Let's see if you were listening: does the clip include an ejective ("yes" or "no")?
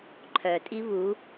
yes